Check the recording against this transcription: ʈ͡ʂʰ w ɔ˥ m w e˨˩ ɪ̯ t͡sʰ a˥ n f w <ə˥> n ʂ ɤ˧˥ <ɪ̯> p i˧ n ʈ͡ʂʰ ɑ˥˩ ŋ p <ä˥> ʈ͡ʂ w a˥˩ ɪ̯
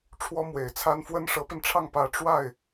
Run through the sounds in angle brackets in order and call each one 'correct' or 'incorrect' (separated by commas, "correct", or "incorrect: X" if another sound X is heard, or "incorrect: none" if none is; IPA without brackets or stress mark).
correct, incorrect: none, correct